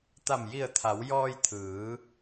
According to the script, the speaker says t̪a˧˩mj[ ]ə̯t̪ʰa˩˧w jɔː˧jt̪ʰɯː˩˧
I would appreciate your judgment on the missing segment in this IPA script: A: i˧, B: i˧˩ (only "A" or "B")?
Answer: B